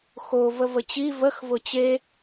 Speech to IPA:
x o v ə v ə t͡ɕ i v ə x v ʊ t͡ɕ e

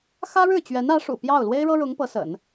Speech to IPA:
x ä˥ ɻ ɻ̩˥˩ t͡ɕ ɥ ɛ˧˥ n ä˧˥ ʂ ṵ˨˩ p j ɑ˥˩ ʊ̯ l w e˥ ɪ̯ ɻ ɤ˥ ɻ ʊ˧˥ ŋ p ɤ˧˥ s ə̰˨˩˦ n

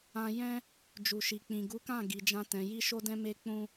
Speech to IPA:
ã˧ j ɛ̃˦ | d͡ʒ u˨ ʃ i˨ k͡p ĩ˨ ɡ u˨˦ k ã˦˨ ɡ i˨ d͡ʒ ã˧ t ɛ̃˨ j i˧ ʃ o˧ d ɛ̃˧ m e˧ k͡p ũ˧

